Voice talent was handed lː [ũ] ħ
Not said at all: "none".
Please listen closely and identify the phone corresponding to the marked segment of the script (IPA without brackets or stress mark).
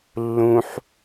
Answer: ũ